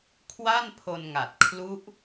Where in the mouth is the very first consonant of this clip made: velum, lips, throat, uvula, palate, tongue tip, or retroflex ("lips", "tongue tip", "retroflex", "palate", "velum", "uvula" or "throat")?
velum